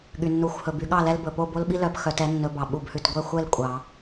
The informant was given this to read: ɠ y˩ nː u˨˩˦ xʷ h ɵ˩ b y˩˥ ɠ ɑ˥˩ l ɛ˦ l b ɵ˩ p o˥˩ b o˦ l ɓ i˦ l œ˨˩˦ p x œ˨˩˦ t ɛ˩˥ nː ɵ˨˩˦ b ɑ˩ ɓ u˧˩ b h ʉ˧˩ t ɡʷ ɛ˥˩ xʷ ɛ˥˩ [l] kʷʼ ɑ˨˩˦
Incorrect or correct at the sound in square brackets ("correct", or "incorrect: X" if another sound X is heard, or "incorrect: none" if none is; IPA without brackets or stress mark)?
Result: correct